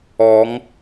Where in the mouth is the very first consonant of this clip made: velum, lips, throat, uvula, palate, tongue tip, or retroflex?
velum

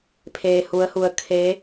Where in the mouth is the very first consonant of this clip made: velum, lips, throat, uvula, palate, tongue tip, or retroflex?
lips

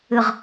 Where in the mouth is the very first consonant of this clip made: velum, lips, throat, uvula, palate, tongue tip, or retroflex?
uvula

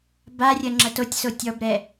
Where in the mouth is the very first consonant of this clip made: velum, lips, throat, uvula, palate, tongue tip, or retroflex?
lips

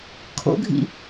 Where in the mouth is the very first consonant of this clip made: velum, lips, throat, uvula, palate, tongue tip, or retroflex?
velum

